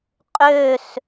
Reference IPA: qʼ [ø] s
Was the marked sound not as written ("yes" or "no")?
no